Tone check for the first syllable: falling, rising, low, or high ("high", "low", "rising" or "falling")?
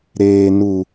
low